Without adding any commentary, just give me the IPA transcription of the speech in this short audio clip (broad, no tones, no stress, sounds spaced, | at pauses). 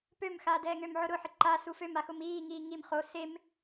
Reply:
p ø m x aː d ɛː ŋ ø m ʕ ʊ ɾ ʊ ħ ɪ ǃ a s u f ø m a x ʊ m iː ŋ iː ŋ i m χ o s e m